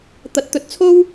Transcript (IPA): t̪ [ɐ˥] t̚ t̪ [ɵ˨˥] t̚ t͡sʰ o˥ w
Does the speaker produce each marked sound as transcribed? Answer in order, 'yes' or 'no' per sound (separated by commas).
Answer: no, yes